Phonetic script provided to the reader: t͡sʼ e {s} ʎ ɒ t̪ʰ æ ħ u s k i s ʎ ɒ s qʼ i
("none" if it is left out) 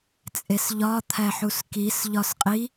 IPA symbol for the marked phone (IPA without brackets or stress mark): s